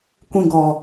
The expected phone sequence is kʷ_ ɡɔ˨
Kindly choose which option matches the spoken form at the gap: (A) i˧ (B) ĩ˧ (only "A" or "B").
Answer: B